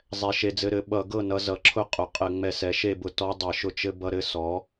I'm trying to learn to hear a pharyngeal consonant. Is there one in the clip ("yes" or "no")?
no